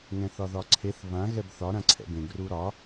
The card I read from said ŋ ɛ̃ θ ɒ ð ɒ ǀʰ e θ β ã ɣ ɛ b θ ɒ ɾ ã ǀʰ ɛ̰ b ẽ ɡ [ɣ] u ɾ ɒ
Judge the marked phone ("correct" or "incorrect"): incorrect